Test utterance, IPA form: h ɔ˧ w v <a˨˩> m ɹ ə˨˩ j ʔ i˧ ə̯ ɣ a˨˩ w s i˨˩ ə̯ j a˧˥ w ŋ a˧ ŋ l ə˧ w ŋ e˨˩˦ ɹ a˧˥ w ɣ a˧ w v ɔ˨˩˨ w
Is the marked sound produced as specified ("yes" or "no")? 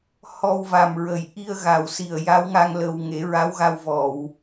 yes